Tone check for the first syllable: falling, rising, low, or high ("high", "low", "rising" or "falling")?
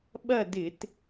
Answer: falling